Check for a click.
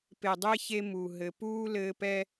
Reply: absent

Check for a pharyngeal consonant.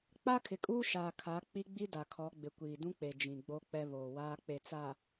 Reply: absent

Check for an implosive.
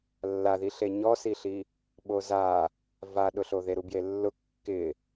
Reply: present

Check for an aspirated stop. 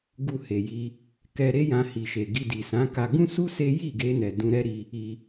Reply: absent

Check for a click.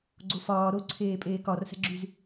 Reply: present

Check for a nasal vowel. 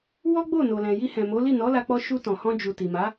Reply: present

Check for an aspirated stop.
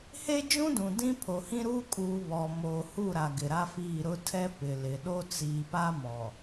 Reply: present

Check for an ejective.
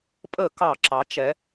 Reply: present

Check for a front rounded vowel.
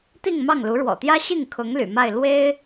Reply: present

